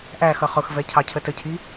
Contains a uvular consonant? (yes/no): yes